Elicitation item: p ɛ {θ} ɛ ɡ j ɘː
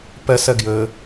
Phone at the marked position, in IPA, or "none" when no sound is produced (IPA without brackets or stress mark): s